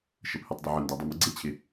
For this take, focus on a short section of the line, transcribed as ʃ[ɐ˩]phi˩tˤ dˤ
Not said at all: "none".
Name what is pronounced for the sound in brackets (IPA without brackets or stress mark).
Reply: ə˩